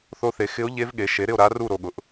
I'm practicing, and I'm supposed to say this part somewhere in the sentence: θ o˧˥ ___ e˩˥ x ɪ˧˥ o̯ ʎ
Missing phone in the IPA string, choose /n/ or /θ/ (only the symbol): θ